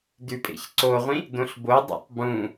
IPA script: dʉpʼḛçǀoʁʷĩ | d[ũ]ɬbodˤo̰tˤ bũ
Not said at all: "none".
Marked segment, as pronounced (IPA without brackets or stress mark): õ